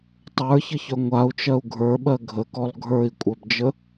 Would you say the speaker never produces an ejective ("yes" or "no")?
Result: no